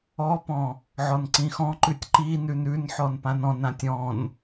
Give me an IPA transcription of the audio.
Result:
ɔpɔ̃ | ʕɔnǀĩxɔ̃ǃʉtʲ ǃinʉn ʉnħɔn pãnɔ̃nãtʲ ɔ̃n

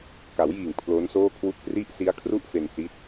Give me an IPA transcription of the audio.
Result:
ka˩˦wjiː˨˩ŋ pʰlo˦˥nsoː˥˩kʰwu˥˩k̚ pri˦˥ʔsi˦˥a̯ kʰru˥˩ʔfe˧nsi˦˥t̚

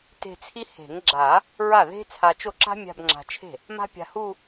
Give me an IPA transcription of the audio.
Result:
te̤˥˧t͡sʰi˥ he̤˨˩˦ŋɡ͡ǁa˨˩˦ | ɹa˥˩ðe̤˥ t͡sʰa˧t͡ʃo˥˩ǁa̤˥ mʲa̤˥˧bŋ͡ǁa̤˧t͡ʃʰe̤˥˩ | ma̤˥pʲa̤˧hu˥˧

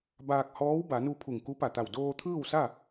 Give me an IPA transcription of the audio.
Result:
baː˧k̚ hɔː˧˥wba˩˧nu˧ pʰu˧˩ŋku˧˥pa˧˩t̪a˧˩w doː˧t̪ʰɯː˥˨wsa˥˨

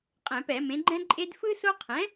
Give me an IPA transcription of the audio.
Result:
qʼɛ̃˧˩˧pɛ˧˩˧ mẽ˩˥ɡ͡ǃɛ̃˥ǃʼe˥d fɯ˥ so˥ qʰɛ̃˩˥

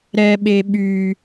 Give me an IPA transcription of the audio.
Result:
ɾɛɓe ɓy

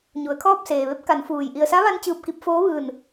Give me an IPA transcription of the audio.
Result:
ɲu˩˧ə̯kʰɔː˥˨p̚seː˩ ʋe˧˥p̚ ka˩˧nfuː˩j ʔi˩ə̯sa˧˥ʋa˧n t͡ɕɯː˧˩p̚ki˧p̚foː˧˥ʋɯː˧˩n

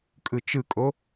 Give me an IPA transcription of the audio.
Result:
kʼɯt͡ʃɯkʼo

